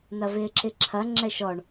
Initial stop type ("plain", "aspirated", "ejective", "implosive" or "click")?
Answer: click